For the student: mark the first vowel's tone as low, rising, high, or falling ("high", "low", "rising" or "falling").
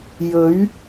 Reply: rising